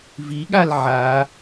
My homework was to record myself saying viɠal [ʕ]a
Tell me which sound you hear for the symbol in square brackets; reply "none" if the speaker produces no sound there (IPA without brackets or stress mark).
ʕ